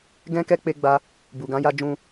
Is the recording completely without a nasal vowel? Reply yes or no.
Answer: no